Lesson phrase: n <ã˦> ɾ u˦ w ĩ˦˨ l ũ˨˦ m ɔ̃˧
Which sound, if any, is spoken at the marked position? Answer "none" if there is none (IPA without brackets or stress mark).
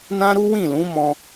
ã˦